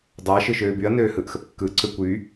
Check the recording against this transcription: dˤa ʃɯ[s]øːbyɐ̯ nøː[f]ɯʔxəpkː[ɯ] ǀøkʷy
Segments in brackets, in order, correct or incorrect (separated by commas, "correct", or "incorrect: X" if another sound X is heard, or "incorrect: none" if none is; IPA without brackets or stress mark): incorrect: ʃ, incorrect: h, correct